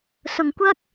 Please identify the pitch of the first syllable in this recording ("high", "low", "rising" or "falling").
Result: low